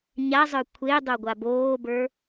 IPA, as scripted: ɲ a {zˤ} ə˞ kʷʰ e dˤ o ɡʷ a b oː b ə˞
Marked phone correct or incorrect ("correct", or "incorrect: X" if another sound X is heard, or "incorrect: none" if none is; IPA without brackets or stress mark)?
correct